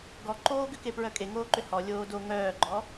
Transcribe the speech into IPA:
ɡ ɔ ǃ oː ɡ ʏ k e p ɹ œ kʼ e ŋ oː ǃ ʏ h ɔ lʲ oː d o ŋ œː ɡ͡ǃ ɔ

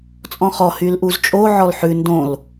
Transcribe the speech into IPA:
t͡sʼ ɔ̃ χ ɔ h y l ʔ u z t͡ʃʼ o ʕ ɔ l ħ ʉ n d õ l

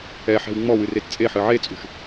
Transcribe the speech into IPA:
ɛ ħ ɛ̤ w ŋ͡m ɔ w ɨ r e t t͡sʼ e ħ ɨ ʕ e t͡sʼ ṳ ʃ

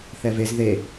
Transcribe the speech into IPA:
θ ɛ v e z ð e

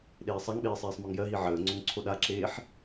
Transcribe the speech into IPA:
ɗ eː sˤ a ŋ ɓ eː sˤ eː sˤ m ɒ ŋ j ɜ ɦ i ʕ əː ŋ͡ǀ o ŋ ǀʰ o ɗ a ǁ eː ħ

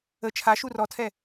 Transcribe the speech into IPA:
ə t͡ʃʰ a ʃ u r ɔ tʰ ɛ

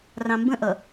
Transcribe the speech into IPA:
r ɑ̃ m b ə̃ ʔ ʌ

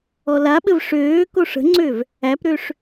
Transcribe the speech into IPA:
ɔ l a ɓ ɘ v ʂ øː k o ʂ ə̤ ŋ͡ǀ ø v | æ p ɾ ø ʂ

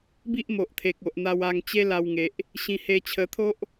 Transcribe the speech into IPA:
b i˦ ʔ m o˨ ʔ t̪ʰ e˨ k̚ o˨ ʔ n̪ a˧ w a˧ ŋ t͡ɕ e˦ l a˧ w ŋ e˨ ʔ | ɕ ĩ˧ h e˧ t͡ɕʰ ə˧ t̪ʰ o˦ ʔ

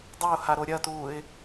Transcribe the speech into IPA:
dˤ ɵ ʊ̯ h a ɾ o ɾʲ ɐ t uː ɪ̯

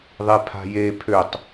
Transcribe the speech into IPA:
ðˤ e pʰ a̤ j e pʰ ø tˤ

